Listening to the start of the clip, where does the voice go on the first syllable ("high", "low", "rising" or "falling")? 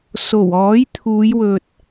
low